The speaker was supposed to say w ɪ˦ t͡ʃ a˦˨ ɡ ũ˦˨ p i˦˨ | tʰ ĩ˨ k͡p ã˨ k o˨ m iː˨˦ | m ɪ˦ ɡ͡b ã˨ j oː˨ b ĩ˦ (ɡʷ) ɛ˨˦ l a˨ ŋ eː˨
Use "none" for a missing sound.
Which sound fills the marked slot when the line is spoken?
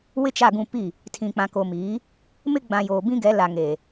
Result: ɡ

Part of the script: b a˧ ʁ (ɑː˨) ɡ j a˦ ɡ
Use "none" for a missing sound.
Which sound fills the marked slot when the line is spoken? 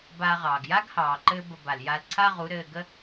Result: ɑː˨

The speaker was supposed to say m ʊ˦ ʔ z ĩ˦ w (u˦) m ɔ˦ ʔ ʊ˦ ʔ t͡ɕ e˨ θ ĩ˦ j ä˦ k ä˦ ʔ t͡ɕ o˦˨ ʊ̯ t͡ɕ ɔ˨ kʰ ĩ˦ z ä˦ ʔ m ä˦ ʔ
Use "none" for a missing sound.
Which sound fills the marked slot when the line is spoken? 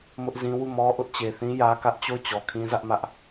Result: u˦˨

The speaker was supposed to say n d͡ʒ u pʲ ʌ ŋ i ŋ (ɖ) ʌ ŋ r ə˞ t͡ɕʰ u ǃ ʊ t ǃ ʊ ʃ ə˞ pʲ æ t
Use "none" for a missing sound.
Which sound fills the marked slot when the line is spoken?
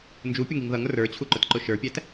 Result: ð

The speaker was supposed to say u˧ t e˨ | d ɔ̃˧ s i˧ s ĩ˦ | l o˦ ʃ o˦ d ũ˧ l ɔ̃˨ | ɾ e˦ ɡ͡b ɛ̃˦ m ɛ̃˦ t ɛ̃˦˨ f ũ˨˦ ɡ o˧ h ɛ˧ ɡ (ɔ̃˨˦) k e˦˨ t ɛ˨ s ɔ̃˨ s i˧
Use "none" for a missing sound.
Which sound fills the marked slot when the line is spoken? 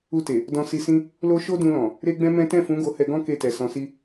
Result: ɔ̃˦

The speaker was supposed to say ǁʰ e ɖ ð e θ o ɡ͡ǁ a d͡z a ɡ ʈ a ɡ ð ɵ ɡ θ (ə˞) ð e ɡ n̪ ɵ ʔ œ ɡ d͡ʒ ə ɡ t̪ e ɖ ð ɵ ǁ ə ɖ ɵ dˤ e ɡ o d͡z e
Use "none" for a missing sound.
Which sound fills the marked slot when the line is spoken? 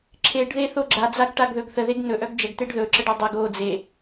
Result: ə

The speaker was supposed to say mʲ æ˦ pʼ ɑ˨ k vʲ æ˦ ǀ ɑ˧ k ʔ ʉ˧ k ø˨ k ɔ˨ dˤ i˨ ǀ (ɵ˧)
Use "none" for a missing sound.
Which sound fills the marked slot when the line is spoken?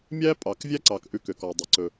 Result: ɵ˧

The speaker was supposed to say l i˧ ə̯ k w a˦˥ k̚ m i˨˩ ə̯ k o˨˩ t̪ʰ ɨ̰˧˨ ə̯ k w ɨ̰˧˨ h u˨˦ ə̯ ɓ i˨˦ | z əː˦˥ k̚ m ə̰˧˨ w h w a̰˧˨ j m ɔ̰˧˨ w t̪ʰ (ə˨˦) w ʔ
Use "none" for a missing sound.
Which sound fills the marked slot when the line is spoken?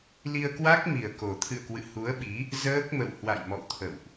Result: ə̰˧˨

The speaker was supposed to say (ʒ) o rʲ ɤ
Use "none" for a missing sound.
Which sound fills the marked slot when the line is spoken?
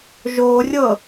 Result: ʒ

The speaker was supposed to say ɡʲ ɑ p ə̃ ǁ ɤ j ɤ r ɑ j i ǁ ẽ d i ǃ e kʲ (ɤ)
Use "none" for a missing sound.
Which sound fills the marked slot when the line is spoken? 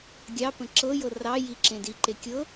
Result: ɤ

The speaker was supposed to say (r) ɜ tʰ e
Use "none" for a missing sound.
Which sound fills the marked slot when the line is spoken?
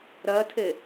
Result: ɾ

